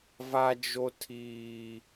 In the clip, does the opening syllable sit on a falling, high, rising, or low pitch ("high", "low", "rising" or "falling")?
high